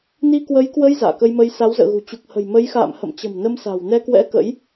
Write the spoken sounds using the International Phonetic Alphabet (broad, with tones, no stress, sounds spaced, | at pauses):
n i˧ k w ə˨˦ j k w ə˧ j z a̰ː˧˨ k ə˧ j m ə˧ j s a˨˦ w z ə̰ː˧˨ ɣ ṳ˨˩ t͡ɕ u˨˩ k̚ h ə̤˨˩ j m ə˨˦ j x a̰ː˧˨ m h ə̰˧˨ m t͡ɕ ə̤˨˩ m n ə˧ m s a̤˨˩ w n ɛ˧ k w ɛ̰˧˥ k ə̰˧˥ j